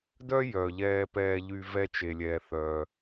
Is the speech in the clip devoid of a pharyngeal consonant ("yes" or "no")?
yes